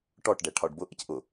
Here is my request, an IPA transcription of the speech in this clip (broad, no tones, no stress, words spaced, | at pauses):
ʈɔʈɖɛ ʈʰɒɖbʊ ʔɪcʔʊ